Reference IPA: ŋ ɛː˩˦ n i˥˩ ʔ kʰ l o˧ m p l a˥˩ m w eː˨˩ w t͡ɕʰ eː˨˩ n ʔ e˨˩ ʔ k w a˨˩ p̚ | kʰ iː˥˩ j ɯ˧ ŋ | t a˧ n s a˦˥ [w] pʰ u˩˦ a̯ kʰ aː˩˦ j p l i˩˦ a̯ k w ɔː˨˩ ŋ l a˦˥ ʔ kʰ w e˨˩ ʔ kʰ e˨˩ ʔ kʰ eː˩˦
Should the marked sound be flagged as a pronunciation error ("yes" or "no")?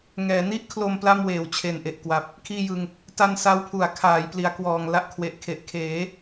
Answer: no